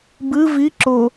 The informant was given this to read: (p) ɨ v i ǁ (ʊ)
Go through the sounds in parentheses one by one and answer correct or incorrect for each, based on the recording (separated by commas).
incorrect, correct